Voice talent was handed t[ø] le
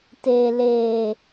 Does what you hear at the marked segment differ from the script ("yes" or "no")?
yes